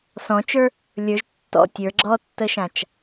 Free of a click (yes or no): no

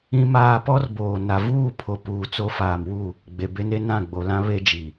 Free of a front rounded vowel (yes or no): yes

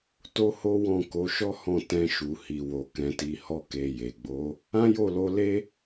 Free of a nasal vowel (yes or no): no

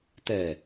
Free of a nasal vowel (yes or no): yes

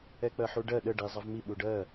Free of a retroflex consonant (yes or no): no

